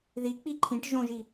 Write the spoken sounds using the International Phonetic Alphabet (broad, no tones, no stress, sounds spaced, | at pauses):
ð i k͡p i ǃʰ ĩ ʈ ʒ õ ʒ i